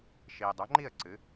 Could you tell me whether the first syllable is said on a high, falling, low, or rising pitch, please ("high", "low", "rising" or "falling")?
low